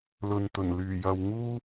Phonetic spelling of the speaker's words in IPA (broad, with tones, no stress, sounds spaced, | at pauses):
l ɵ˨ n t̪ ɵ˨˩ n l yː˨˩ j ɐ˨ w ŋ uː˥